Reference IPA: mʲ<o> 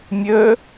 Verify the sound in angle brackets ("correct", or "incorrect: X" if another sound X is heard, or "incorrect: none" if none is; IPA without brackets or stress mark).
incorrect: ɵ